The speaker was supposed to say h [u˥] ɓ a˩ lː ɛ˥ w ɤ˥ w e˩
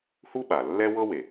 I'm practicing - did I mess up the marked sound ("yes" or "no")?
no